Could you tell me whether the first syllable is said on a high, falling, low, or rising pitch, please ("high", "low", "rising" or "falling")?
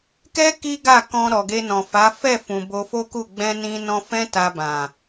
high